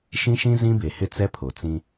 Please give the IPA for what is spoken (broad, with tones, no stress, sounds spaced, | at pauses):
ʃ ĩ˦ ʃ ĩ˦ z ĩ˦ b e˨ h ɪ˦ t͡s ɛ˦ pʰ o˨ t͡s ĩ˦